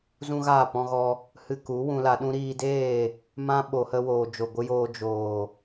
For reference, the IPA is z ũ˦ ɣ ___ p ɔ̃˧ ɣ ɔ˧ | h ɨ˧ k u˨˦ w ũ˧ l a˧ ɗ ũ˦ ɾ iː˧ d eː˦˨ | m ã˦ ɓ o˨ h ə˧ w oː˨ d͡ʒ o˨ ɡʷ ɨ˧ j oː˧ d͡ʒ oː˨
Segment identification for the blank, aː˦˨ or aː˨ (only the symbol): aː˦˨